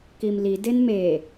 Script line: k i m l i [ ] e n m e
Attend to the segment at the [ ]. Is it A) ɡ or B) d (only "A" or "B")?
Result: B